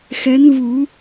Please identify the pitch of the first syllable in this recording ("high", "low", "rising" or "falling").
rising